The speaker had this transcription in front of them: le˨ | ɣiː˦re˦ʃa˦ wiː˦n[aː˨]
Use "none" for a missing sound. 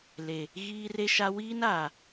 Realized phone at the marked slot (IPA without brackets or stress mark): aː˨